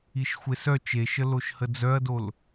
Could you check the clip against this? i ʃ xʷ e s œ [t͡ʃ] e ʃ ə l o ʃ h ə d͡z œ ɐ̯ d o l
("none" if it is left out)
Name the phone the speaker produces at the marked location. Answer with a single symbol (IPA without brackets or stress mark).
t͡ʃ